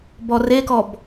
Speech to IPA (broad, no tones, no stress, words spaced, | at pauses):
bɔrekɔb